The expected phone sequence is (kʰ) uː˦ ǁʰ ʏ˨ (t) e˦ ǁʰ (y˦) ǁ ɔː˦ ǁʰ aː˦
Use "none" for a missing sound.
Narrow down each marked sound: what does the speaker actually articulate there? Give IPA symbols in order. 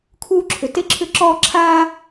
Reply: kʰ, t, ʏ˦

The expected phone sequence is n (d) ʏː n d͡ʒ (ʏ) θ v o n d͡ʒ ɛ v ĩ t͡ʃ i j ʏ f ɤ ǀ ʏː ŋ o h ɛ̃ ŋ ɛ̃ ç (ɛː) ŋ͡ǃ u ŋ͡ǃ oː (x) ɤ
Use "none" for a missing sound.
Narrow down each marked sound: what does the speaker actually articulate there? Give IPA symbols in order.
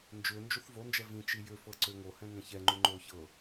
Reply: d͡ʒ, u, ɛ, ç

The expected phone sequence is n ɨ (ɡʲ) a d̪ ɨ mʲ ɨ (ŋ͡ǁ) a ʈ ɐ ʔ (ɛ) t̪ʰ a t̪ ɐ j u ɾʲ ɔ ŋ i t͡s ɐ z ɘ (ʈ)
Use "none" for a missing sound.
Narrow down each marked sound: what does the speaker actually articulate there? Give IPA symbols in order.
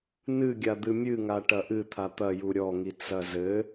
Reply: ɡʲ, ŋ, ɨ, none

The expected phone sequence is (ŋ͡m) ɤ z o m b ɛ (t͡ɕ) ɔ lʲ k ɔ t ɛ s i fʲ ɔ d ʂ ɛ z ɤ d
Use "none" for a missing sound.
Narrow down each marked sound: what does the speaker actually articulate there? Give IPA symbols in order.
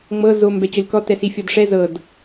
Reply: ŋ͡m, t͡ɕ

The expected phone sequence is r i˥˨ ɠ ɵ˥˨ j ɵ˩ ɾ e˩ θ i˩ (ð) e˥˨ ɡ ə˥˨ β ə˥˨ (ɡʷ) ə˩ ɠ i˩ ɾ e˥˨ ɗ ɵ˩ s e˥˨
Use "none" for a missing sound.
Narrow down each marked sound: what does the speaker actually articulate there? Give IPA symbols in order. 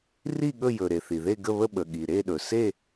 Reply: ð, ɓ

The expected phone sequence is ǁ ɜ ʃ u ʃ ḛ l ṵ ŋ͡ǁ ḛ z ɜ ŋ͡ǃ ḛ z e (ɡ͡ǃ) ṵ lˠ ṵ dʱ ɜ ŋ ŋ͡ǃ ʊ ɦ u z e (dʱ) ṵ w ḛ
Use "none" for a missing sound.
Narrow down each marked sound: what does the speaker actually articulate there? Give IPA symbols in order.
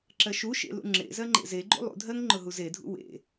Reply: ɡ͡ǃ, dʱ

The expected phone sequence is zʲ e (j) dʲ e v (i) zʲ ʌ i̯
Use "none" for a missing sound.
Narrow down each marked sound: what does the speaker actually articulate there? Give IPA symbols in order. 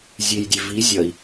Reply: j, i

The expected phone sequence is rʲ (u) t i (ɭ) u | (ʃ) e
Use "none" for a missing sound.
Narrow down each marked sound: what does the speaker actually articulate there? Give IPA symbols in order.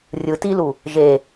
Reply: ɯ, l, ʒ

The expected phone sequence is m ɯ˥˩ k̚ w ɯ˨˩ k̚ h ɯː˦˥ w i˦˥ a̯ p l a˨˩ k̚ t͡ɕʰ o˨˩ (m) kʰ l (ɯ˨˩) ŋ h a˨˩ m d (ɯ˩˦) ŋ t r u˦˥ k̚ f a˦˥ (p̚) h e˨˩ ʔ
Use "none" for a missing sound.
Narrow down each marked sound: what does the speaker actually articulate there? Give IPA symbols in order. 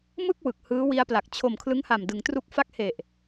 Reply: m, ɯ˦˥, ɯ˩˦, k̚

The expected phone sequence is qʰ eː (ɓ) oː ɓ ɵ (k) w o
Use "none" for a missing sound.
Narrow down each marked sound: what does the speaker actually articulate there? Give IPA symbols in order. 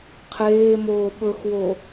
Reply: m, x

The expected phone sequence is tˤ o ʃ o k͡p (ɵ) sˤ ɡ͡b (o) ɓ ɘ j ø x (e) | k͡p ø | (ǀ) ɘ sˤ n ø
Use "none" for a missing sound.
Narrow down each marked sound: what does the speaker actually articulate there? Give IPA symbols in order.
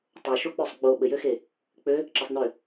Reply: ø, o, e, ǁ

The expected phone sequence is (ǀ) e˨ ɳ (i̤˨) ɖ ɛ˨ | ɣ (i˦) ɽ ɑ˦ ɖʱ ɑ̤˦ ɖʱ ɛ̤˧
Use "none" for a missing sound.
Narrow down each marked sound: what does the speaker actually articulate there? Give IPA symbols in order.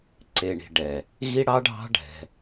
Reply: ǀ, i̤˨, i˦

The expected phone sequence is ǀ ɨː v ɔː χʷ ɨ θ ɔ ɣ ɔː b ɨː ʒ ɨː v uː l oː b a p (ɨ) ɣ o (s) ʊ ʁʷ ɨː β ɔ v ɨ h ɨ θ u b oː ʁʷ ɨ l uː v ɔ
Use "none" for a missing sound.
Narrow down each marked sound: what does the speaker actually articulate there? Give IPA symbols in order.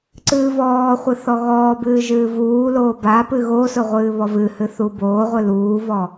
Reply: ɨ, s

